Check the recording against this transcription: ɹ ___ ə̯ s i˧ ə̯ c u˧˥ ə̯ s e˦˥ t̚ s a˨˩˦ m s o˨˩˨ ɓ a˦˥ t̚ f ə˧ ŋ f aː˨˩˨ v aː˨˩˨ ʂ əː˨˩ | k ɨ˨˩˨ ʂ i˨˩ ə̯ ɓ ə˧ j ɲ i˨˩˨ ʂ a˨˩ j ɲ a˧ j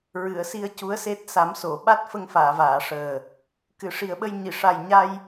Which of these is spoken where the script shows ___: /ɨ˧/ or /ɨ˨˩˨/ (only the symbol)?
ɨ˨˩˨